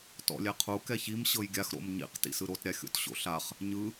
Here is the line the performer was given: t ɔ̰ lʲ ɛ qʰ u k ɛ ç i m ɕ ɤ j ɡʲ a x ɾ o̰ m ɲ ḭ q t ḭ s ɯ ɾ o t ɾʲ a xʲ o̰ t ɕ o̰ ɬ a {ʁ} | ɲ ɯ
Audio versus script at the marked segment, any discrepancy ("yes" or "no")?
yes